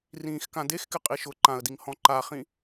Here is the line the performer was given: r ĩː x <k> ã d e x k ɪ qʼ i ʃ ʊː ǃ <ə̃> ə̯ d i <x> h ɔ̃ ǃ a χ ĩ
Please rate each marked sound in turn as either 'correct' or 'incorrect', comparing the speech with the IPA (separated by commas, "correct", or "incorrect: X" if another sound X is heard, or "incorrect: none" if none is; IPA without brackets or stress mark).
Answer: correct, incorrect: ã, incorrect: ŋ